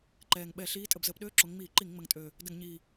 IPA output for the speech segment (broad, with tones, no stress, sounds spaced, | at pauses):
ǃ ɛː˨˩ ŋ ɓ ɛ˧˩˧ ɬ iː˨˦ tʼ ə˧˩˧ b z əː˨˦ p ɗ øː˧˥˧ ǁ o˨˦ ŋ ŋ͡m iː˧˩˧ ǃ i˧˩˧ ŋ ŋ͡m ə˨˩ ŋ tʼ øː˨˩ | d ə˧˩˧ ŋ ɲ iː˨˩